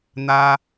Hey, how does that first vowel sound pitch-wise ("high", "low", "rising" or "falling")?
high